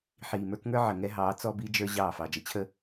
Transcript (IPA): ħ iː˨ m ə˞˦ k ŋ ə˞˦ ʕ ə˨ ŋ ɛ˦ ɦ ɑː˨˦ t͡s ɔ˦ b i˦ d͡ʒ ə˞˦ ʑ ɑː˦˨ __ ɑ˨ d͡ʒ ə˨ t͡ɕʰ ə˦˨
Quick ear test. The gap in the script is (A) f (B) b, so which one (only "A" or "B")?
A